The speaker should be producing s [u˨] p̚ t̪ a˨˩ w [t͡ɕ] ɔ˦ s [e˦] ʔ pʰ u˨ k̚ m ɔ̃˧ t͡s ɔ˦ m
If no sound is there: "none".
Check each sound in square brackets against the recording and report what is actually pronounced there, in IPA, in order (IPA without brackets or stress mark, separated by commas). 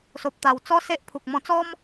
o˨, t͡s, e˦